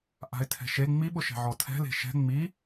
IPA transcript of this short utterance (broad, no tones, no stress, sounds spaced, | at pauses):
ʔ a̤ ɪ̯ tʰ ɛ̤ ʃ e ŋ͡m i ɓ ʊ ʃ ɛ̤ ʕ ɔ tʰ ɛ̤ l e̤ ʃ ɛ̤ ŋ͡m i